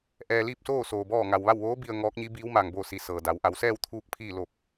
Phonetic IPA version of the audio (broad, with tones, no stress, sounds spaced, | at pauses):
ʔ ɛː˧ l iː˥˨ p̚ s oː˥˨ s oː˧ b ɔː˥˨ ŋ a˧ w ʋ a˥˨ w ʋ oː˧˥ b i˧ ə̯ ŋ ɔː˧˥ k̚ ɲ i˧˥ b iː˧˥ w m aː˧ ŋ b oː˥˨ s i˧ s ɤː˩ d a˩˧ w ʔ a˩˧ w s ɛː˥˨ w t̪ʰ uː˥˨ k̚ pʰ iː˥˨ l o˧˩ p̚